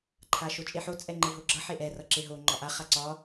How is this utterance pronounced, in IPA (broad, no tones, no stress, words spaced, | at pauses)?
ǃʰaʃot͡ʃʼeħo t͡sʼɛŋ͡ǃeɦoɡ͡ǁʌ ħeʔɛ rʌǁeɦo ŋ͡ǃɒʔa χaǀɒ